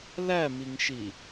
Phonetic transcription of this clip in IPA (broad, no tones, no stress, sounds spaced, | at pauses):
l æ m i ŋ ʃ i